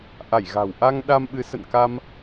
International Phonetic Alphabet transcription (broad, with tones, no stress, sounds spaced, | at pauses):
ʔ a˧˩ j ɣ a̤˨˩ w ʔ a˧ ŋ ɗ a˧ m ɓ ɨ˨˦ s ə̰˧˨ n k a˧ m